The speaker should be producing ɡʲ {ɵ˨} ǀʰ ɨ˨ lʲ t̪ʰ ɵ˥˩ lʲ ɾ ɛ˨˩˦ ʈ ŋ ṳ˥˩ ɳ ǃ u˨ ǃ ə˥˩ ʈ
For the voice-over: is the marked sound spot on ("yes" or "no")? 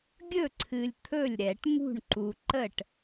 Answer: no